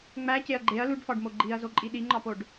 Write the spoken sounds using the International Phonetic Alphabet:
ŋ͡m æ c e ɐ̯ ɡ͡ǃ e ɐ̯ l u ɖ f ɒ ɖ m o ɡ͡ǃ i ɐ̯ z o ǃʼ i ɗ i ŋ͡ǃ ɒ p o ɖ

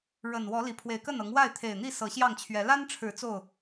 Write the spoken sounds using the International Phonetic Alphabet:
ɻ ə˨˩ n w ɔ˨˦ l i˨˩ pʰ w e˨˦ ɪ̯ k ə˥˨ n ɤ˨˦ ŋ w a˥˨ ɪ̯ t̪ʰ e˨˩ ɪ̯ n̪ i˥˨ s ɤ˨˦ ɕ j ɑ˥˨ ŋ t͡ɕʰ ɥ ɛ˨˦ l a˦ n ʈ͡ʂʰ ɻ̩˨˦ t͡s o˥˨ ʊ̯

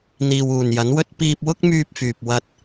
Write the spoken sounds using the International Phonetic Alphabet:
n̪ iː˨ w uː˨˩ n j ɐ˨˥ n w ɵ˥ t̚ p iː˧ p̚ w ʊ˥ k̚ m yː˧ p̚ f yː˨ p̚ w ɐ˧ t̚

